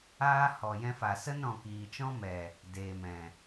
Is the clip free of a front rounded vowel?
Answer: yes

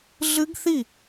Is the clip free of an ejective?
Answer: yes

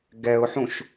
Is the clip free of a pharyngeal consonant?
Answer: no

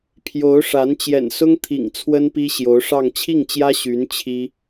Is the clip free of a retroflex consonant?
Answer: no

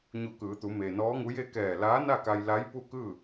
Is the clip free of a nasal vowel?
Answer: yes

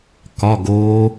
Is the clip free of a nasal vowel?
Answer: yes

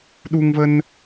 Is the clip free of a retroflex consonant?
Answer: yes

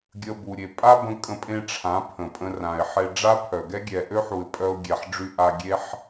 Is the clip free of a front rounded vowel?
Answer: no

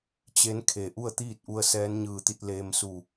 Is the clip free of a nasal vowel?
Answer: yes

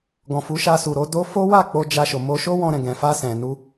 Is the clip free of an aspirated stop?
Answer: yes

